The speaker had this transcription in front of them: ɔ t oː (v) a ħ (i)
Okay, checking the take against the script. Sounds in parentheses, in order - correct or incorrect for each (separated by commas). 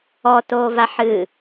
correct, incorrect